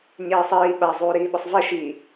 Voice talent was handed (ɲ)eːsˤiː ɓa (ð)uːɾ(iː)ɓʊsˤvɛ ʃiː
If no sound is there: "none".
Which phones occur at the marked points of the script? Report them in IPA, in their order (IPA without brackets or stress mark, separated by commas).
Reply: ɲ, zˤ, iː